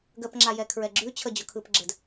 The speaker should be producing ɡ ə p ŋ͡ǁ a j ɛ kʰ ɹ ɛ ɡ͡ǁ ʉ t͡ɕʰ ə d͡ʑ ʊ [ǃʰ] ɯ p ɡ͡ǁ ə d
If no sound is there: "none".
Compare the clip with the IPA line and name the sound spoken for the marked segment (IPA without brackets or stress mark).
kʰ